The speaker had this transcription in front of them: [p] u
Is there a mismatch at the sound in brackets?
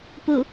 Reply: no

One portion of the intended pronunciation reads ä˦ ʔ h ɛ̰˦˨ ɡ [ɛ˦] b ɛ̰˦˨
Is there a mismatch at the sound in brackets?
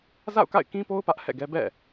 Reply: no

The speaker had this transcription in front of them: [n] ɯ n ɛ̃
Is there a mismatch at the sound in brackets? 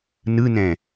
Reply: no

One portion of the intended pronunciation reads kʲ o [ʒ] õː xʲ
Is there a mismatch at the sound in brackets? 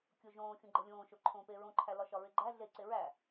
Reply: no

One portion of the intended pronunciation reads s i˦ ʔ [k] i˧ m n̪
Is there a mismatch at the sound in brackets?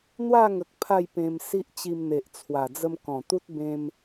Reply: yes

